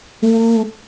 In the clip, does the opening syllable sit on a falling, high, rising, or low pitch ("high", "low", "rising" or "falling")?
high